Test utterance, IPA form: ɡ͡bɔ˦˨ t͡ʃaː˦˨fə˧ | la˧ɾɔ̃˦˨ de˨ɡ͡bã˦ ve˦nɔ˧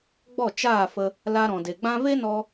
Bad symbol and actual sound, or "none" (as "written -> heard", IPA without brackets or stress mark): ɔ̃˦˨ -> ɔ̃˨